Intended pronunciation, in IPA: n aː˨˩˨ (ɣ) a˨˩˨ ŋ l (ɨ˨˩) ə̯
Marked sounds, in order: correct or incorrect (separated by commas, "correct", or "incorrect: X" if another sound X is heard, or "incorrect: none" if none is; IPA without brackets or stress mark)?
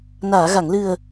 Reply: correct, correct